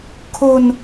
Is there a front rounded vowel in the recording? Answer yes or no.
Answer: no